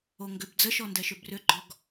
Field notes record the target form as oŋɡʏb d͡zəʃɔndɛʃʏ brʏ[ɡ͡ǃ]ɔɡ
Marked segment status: correct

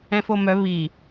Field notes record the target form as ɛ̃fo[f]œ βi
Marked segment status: incorrect: m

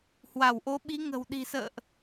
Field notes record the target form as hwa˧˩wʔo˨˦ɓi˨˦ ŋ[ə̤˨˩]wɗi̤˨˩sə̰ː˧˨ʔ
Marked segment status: correct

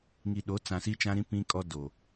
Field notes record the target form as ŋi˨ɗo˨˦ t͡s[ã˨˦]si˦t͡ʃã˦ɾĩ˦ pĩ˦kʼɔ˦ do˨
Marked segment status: incorrect: ã˨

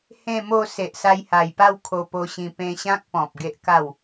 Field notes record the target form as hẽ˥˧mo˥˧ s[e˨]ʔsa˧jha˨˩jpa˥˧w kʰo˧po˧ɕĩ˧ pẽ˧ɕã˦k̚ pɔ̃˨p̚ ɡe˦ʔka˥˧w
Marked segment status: correct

